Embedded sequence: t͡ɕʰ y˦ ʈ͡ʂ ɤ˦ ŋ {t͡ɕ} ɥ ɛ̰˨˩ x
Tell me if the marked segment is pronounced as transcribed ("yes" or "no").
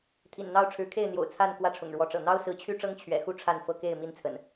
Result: no